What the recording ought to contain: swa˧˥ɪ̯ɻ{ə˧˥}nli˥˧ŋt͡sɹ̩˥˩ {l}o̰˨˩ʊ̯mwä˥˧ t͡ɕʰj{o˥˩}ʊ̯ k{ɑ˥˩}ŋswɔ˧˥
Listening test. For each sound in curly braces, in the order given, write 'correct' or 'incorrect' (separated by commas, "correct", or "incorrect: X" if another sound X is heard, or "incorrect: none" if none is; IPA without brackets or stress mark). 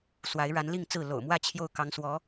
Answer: incorrect: a˧˥, correct, correct, incorrect: ɑ˧˥